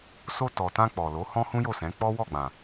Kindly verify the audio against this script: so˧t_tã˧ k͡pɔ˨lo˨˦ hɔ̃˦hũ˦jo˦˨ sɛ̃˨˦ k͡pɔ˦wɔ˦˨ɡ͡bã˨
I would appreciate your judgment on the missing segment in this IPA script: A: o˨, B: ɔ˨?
B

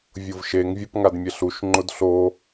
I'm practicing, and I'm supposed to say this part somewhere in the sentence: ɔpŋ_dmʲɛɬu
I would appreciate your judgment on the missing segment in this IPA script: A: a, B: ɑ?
A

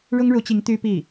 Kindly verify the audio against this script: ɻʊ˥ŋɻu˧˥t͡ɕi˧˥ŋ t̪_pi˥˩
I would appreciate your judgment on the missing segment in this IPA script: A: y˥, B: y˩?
A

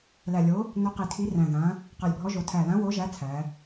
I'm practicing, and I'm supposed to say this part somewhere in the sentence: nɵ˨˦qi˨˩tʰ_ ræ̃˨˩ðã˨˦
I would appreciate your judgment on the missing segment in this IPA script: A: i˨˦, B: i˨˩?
A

